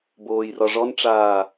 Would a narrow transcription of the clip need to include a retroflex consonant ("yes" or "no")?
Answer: yes